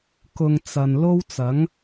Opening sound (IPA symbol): k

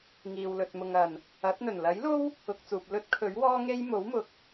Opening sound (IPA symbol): ŋ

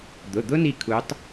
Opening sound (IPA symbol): d̪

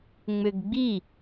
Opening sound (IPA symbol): ŋ͡m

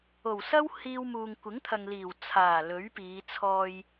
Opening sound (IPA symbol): o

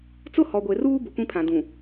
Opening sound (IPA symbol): t͡s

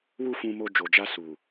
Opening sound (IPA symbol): w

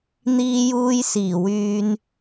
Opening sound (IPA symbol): n̪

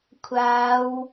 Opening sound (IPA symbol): kʷʰ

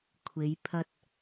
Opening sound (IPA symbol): kʷʰ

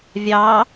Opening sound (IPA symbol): vʲ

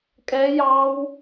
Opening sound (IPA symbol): kʼ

